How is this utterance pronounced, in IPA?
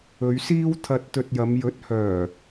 ɵ˨˧ ɥ s iː˥ w t̪ʰ ɐ˧ t̚ t̪ ɵ˧ t̚ j ɐ˨˧ m j ɵ˨˥ t̚ h œː˨˩

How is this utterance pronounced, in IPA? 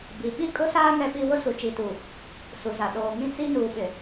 b i˨ ɓ i˦ kʼ ʊ˦ s aː˦ ŋ ɛ˦ p i˦ w ʊ˦ s u˨ t͡ʃ i˨ t u˨ | s u˨ z a˨ ɗ oː˨ ŋ ĩ˦˨ t͡s i˦ n uː˨ ɓ ɪ˨

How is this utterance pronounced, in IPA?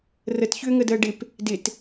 r ə t ç ʏː ŋ ə d əː ɖ ɪ p | d ɪ t

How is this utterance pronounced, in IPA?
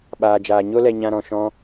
ɓ aː˨ d͡ʒ aː˨ ɲ o˦ l ɛ˧ ɲ ã˧ ɾ ɔ̃˨ ʃ ɔ̃˧

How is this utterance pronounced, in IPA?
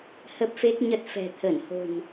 h ə˦˥ p̚ f e˦˥ k̚ ɲ ə˦˥ t̚ f ɛ̤˨˩ t̪ʰ ə˧˩ n h o̤˨˩ n

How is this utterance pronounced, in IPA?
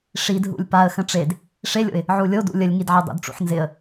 ʂ i d ɦ ṵ lʲ p a ə̯ x ə̃ ʈ͡ʂ e d | ʂ e lʲ o̰ ɪ̯ | ʕ u lʲ o d ṵ lʲ ə lʲ ŋ i d ʕ e dˤ ṵ d ʈ͡ʂ ṵ ħ n z ɪ ə̯

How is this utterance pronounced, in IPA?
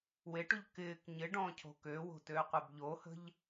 w e ʈ u ʎ k ɪː k ɲ ɪ ɖ ɔ̃ː cʰ o̤ k ø w o̤ t øː qʷ e b ʎ o h ə̤ ʎ

